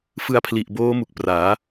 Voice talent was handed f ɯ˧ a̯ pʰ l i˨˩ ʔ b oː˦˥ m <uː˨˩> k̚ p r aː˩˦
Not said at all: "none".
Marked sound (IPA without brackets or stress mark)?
u˨˩